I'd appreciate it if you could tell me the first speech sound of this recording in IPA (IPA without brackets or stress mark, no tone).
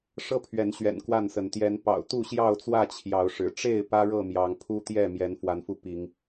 ʂ